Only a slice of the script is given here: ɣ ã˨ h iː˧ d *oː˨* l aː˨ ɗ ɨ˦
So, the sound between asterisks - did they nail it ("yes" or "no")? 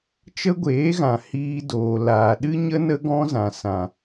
yes